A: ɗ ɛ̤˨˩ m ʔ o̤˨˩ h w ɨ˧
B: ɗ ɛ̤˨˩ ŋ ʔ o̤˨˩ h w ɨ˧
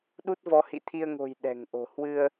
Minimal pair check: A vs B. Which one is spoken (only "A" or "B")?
B